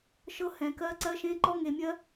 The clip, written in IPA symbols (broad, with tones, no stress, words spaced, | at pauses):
ʃɤ˧˥hɛ̃˩kɜ˧˥ ǀɜ˧˥ʃẽ˧˥ ǃɔ˥ŋe˧mʲɜ˥